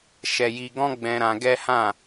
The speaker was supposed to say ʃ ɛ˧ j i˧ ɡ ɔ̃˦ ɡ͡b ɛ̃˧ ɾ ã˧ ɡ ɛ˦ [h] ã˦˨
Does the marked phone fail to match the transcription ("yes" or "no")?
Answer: no